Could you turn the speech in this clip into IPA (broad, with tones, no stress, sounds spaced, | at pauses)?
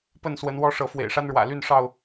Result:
p ə˥˨ n s w ə˨˦ n w ɔ˦ ʂ ɤ˨˦ f w ḛ˨˩ ɪ̯ ʂ a˦ n ɻ w ä̰˨˩ l y˥˨ n ʂ ɑ˥˨ ʊ̯